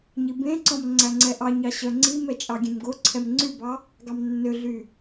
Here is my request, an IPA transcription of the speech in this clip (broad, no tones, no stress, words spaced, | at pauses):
ɲibẽǀɔ̃m ŋ͡ǀæŋ͡ǀɛʔɑɲɑ ɕœŋ͡ǀimɛ t͡ʃʼɑɡʲẽmɡoǀʰɛm ŋ͡ǀybɑ | ɡɑmnːøɮy